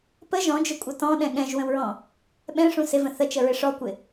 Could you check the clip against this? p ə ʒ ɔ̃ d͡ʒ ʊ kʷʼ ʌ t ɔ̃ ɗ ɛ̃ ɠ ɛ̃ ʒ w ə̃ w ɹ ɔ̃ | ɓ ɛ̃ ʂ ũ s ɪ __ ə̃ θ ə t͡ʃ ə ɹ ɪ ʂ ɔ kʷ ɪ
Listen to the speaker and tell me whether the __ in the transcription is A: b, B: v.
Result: B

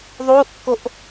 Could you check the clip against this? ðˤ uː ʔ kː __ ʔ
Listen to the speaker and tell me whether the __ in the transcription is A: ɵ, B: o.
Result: B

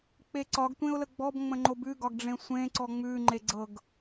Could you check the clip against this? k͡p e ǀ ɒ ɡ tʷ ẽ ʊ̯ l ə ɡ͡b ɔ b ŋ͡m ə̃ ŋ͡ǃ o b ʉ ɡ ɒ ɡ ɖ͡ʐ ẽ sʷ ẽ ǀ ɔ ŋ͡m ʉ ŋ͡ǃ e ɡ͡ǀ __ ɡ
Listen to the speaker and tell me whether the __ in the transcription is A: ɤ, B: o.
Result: A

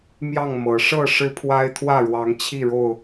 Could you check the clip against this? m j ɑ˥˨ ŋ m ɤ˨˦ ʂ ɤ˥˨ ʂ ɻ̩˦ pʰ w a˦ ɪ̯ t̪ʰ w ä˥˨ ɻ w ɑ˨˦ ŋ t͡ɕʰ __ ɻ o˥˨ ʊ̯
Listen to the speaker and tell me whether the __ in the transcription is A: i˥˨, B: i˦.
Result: A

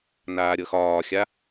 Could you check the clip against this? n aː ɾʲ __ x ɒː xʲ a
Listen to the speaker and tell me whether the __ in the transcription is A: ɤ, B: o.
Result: A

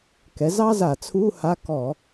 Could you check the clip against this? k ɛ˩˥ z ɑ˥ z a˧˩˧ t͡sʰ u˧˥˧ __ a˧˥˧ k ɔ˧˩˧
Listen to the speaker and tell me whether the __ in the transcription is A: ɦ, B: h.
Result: B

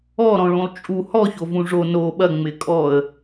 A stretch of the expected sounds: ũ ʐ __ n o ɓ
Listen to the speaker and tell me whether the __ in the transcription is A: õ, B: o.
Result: B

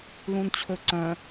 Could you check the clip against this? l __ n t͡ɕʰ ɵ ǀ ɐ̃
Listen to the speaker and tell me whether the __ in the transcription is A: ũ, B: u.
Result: A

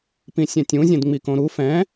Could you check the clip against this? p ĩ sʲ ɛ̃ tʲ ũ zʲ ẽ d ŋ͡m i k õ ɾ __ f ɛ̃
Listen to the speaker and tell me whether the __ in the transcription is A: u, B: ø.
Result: A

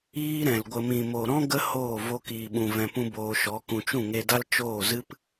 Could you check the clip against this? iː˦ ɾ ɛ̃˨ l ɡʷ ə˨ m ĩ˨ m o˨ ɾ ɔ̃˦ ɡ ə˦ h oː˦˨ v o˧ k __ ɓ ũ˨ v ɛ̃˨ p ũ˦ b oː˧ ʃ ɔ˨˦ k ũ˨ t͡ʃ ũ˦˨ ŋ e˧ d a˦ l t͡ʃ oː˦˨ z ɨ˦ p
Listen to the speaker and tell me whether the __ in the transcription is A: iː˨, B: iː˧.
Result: A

